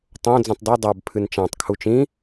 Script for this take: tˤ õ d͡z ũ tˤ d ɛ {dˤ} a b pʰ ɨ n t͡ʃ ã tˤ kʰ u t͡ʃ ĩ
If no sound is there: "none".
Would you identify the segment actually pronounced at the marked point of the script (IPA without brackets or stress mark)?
dˤ